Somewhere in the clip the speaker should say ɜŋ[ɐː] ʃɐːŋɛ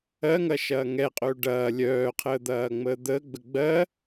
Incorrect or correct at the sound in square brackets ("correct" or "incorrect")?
correct